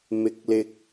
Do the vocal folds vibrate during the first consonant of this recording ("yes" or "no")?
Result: yes